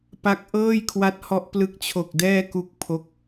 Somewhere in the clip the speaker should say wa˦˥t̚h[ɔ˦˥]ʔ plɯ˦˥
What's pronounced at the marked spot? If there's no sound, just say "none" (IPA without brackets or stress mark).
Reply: ɔ˦˥